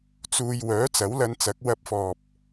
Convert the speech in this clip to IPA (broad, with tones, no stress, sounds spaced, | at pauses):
t͡s uː˧ j w œː˨˥ t͡s ɐ˨˥ w l ɐ˧ n t͡s ɐ˨˥ k̚ w ɐ˧ p̚ f ɔː˨ p̚